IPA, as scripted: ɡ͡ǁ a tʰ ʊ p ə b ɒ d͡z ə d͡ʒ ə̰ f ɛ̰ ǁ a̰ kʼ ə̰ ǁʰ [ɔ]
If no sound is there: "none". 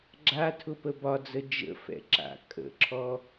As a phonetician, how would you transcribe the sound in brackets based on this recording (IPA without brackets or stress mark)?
ɔ